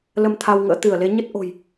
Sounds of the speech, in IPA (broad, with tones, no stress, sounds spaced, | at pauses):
l ə˧ m t̪ʰ a˧ w ŋ ə̰ː˧˥ t̪ ɨ˧˩ ə̯ l e˨˦ ɲ ə˦˥ t̚ ʔ o̤˨˩ j